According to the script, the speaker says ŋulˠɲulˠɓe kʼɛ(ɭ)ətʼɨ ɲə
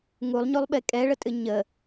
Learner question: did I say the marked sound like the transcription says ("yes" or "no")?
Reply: yes